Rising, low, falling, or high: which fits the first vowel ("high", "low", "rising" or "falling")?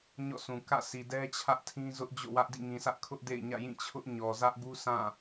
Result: falling